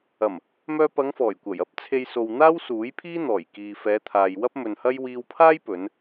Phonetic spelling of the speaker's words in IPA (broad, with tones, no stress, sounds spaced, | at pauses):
ɐ˨˩ m | m œː˧ p ɐ˨˧ ŋ f ɔː˨˩ j kʷ ɐ˨˩ j ɐ˥ p̚ t͡sʰ e˧ j s o˨ w n̪ aː˥ w s uː˨˥ j pʰ iː˥ n̪ ɔː˨˩ j k iː˨ f ɛː˨˧ t̪ʰ aː˨ j w ɐ˥ p̚ m ɵ˨ n h ɐ˥ j w iː˧ w pʰ aː˥ j p ɵ˨˧ n